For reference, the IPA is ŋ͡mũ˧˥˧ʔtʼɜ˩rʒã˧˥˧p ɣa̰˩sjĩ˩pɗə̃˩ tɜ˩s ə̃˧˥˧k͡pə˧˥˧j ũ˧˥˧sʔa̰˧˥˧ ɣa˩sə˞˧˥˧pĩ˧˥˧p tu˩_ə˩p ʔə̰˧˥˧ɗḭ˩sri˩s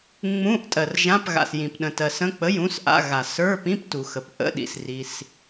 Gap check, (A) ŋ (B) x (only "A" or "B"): B